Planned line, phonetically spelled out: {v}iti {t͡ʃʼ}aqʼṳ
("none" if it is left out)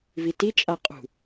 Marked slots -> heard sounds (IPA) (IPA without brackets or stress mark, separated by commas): v, t͡ʃʼ